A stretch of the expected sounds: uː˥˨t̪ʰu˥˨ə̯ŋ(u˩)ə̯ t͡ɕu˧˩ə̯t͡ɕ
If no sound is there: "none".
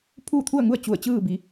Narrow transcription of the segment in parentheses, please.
u˥˨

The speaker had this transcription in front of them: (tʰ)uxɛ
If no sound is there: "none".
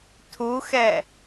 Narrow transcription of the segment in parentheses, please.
tʰ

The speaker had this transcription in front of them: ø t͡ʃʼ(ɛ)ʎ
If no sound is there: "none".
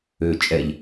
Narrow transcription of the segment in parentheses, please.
ɛ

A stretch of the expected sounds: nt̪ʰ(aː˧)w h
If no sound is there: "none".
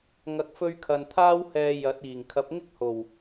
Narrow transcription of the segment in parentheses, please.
aː˥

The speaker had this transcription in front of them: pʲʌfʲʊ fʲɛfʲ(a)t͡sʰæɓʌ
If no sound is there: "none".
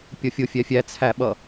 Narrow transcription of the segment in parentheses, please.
æ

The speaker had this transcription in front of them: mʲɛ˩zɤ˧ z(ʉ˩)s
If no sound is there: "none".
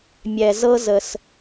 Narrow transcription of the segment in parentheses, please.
ə˩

